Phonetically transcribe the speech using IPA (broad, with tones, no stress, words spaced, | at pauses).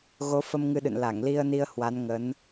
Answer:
ɣo˨˦fə˧mŋɨ˧ɗɨ̰˧˨n la˧˩ŋli˧ə̯ ni˧ə̯hwa˨˦n ŋə˨˦n